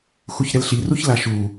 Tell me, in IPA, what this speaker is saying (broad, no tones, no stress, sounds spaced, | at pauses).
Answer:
x u ç ɾ ɛ l ɬ i r u ç l a ʃ u